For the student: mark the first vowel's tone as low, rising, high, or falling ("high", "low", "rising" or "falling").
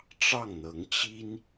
falling